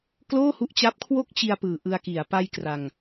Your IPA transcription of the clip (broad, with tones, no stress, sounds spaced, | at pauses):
k l oː˥˩ h u˦˥ ʔ t͡ɕ a˦˥ p̚ kʰ w o˥˩ k̚ t͡ɕ i˧ a̯ p ɯː˨˩ ʔ ɯ˧ a̯ k i˨˩ a̯ p a˧ j k r a˧ ŋ